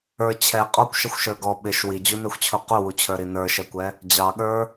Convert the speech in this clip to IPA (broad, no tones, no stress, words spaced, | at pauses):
ə˞ t͡ɕʰɛ qʼɔkʷʃəxʷʃə˞ ɡɔ ɓɪʃ wid͡ʑunɛxʷt͡ɕʰu quwut͡ɕʰə˞ɾi nə˞ʃɛkʷɛ | d͡ʑɑɠə˞